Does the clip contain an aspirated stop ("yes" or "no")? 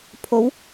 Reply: yes